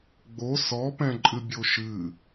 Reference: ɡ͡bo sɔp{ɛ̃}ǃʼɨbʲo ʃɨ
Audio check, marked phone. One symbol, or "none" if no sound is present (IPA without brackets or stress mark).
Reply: ɛ̃